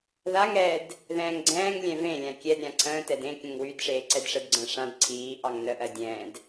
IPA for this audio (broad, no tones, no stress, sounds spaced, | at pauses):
ð a ŋ ɾ ɛ d | ð ɛ̃ː ŋ ɡ͡ǀ ɛ̃ː ŋ lʲ ɛ̃ v ẽ lʲ ã kʲ ɛ d ɾʲ ã ǀʰ ə̃ː t ɛ d ẽ kʲ ə̃ ŋ w y d ʂ eː ǀ ɛ d ʂ ə d ɡ͡ǀ ə̃ː ʂ ã d ǀʰ iː ʔ ɑ ŋ n ə ʔ ɜ dʲ ɛ̃ː d